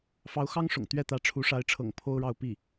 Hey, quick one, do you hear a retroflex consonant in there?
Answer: yes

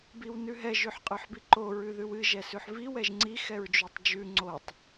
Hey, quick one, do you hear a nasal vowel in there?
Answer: no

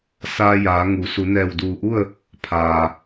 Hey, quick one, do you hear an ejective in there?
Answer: no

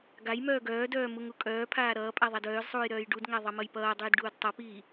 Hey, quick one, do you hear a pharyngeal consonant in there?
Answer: no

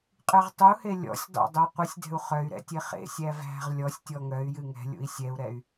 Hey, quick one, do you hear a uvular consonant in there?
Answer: yes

